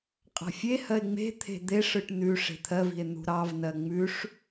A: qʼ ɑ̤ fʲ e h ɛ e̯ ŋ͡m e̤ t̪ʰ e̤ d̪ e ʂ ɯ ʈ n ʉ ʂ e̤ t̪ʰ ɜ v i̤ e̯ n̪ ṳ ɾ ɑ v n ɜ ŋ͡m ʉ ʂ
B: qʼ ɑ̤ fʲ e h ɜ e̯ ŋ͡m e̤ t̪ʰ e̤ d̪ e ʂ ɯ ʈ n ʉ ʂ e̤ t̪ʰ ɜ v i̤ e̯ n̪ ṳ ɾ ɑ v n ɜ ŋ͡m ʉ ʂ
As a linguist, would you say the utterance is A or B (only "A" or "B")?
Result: B